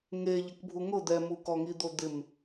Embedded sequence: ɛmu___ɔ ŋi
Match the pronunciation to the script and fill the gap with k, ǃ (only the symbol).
k